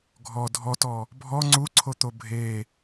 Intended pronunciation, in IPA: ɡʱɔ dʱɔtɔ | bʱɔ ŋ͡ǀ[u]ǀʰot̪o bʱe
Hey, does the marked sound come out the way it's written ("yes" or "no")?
yes